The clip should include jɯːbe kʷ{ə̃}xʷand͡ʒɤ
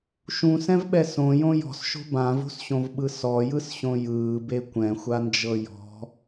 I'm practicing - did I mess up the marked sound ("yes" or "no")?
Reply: yes